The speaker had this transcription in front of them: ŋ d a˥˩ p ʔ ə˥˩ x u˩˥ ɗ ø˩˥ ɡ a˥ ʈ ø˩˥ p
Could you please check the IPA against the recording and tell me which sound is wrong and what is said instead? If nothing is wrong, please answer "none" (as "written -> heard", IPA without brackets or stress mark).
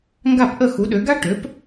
d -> ɡ